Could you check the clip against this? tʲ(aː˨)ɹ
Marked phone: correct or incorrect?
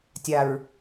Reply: incorrect